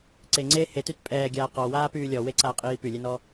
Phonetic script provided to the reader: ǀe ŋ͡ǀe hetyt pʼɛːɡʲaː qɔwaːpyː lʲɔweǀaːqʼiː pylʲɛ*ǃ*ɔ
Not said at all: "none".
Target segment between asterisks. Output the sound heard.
n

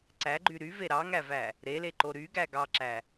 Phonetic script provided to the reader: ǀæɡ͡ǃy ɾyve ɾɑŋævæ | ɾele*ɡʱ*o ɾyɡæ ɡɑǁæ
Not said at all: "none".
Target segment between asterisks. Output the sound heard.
ǃ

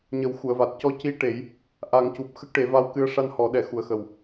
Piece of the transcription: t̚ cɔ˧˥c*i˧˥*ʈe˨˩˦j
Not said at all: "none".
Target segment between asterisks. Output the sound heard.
i˧˥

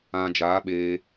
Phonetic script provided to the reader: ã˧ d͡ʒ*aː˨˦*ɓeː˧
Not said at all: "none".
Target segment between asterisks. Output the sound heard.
aː˨˦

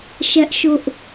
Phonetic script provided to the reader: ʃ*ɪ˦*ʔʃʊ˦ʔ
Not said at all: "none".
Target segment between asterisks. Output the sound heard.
ɛ˦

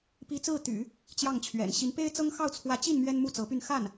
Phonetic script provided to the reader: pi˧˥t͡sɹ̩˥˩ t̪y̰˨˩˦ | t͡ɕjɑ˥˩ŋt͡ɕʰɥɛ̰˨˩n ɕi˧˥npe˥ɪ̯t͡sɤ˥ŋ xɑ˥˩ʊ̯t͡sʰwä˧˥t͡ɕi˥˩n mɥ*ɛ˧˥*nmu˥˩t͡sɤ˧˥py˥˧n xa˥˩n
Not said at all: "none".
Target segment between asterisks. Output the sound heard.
ɛ˥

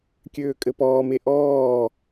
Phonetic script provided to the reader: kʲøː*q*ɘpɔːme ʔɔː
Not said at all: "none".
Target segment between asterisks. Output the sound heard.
kʼ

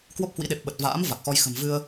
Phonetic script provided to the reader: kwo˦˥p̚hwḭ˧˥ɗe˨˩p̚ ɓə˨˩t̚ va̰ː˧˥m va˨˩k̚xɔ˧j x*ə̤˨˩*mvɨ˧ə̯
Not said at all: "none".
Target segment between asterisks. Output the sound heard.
ə̤˨˩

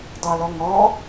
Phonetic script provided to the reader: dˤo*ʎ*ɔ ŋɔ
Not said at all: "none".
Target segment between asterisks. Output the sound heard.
l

